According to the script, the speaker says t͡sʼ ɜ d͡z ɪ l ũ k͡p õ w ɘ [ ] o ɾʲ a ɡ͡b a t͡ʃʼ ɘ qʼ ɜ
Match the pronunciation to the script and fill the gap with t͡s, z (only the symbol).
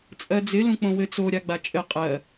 t͡s